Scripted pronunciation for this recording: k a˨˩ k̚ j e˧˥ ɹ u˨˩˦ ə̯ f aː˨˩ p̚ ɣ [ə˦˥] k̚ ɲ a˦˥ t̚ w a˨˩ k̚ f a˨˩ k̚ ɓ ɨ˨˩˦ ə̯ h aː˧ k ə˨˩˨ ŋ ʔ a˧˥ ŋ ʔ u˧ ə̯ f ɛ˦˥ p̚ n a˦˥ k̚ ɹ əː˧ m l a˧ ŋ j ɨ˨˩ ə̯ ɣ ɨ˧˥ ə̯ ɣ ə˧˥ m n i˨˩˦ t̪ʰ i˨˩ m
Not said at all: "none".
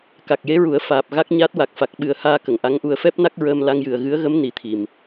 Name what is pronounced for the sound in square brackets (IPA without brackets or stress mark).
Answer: a˦˥